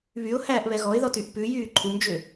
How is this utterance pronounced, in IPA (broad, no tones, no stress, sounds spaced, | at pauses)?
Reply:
β y ʊ̯ h æː ʔ β ɛ ɣ ɔ ɪ̯ ð ɔ t y ʔ p ʉ j yː ǃʰ u m d͡ʒ ø